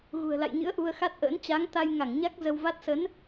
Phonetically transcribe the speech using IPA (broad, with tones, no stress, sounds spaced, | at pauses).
ɣ ṳ˨˩ ə̯ l a̰˧˨ j ɲ ɨ̰˧˥ ə̯ ʔ u˧ ə̯ x a˦˥ t̚ ʔ ə̰ː˧˥ n t͡ɕ a˨˦ ŋ t̪ a˧ j ŋ a˧˩ ŋ ɲ a˦˥ k̚ z ə˧ w v a˦˥ t̚ s ə˨˦ n